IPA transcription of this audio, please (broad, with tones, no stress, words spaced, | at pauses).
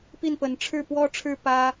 pi˥˩npə˧˥n ʈ͡ʂʰɻ̩˥˩pwɔ˥ʈ͡ʂʰɻ̩˥ pä˥